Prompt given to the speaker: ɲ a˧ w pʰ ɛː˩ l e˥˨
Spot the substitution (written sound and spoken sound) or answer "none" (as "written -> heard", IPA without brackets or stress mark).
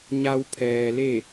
none